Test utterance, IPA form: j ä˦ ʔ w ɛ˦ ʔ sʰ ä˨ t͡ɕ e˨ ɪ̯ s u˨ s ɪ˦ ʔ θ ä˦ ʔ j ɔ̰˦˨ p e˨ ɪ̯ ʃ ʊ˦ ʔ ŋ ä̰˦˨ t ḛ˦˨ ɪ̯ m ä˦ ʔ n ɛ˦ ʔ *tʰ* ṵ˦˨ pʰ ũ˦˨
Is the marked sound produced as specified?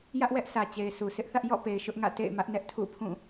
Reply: yes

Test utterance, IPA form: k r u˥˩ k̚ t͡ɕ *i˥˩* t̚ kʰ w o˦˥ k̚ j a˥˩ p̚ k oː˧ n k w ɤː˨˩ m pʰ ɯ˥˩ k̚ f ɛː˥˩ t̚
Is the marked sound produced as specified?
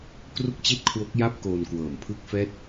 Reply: yes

